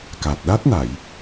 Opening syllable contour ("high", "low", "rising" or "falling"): low